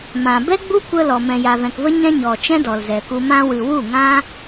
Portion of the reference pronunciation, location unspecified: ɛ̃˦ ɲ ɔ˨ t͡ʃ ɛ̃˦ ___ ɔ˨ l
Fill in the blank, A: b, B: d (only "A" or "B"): B